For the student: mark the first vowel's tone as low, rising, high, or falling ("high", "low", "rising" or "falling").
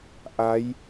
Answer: rising